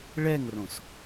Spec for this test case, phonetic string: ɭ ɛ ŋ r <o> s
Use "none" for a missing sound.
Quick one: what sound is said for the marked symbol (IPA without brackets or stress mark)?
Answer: õ